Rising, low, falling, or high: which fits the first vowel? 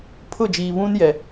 falling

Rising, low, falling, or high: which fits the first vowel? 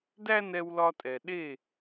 high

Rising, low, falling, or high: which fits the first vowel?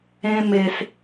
high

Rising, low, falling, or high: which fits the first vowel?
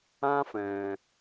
high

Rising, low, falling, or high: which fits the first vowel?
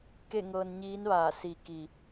falling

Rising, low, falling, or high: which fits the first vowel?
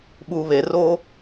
low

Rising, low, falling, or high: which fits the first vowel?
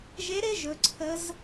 rising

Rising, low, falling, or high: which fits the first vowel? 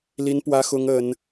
high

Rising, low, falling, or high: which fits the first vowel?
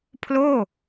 falling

